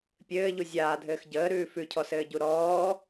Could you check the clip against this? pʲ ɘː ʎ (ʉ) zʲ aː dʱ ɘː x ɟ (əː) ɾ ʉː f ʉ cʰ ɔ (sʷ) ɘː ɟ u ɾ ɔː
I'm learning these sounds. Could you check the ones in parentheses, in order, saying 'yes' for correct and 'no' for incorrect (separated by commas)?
no, yes, no